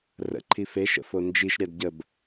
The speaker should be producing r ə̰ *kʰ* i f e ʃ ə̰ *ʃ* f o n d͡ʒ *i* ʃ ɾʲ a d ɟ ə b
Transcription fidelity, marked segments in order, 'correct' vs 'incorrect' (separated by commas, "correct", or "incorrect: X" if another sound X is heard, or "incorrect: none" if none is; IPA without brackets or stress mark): incorrect: ǃʰ, incorrect: none, correct